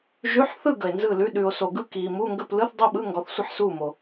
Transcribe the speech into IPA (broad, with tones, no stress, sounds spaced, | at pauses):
ʒ ʉ˧˥˧ ħ θ ɯ˥˨ ɡ ə˨ e̯ n z ɯ˥˨ l ʉ˧˥˧ ɗ ʉ˨ o̯ s o˨ ɡ ɯ˥˨ k iː˨ m u˧˥˧ ŋ ɡ ə˥˨ p l ɯ˧˥˧ θ dˤ u˥˨ ɓ ɯ˧˥˧ ŋ ɡ ɔ˨ θ sʷ ə˥˨ ħ s uː˥˨ m o˨